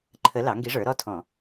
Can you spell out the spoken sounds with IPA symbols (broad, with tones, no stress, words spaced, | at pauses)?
ǃʰə˧˥ lɑ˩˥ŋɡi˧˥ʐə˞˩˥ ɾɔ˧˥˧tʰɔ̃˧˩˧